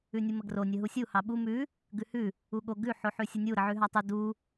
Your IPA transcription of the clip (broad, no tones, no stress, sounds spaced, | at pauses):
ʉ nʲ u m ə ɡ r o nʲ ə ɦ u sʲ u h ɑ ɓ u m ʉ | ɡ ʉ h ʉ | u ɠ o ɡ ʉ ħ o ħ ʉ sʲ u nʲ u ɾ ə ʕ ʉ ɦ ɑ tˤ u d u